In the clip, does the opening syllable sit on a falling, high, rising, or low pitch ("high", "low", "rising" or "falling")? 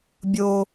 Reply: high